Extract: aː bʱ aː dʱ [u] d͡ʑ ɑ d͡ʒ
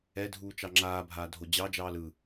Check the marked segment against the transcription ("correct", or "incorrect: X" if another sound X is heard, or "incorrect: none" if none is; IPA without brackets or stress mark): incorrect: o